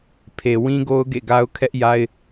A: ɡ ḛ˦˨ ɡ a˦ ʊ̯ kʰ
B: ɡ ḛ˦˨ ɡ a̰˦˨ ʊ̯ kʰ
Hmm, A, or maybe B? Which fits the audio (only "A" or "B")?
A